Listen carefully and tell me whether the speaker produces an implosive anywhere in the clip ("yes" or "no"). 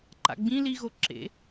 no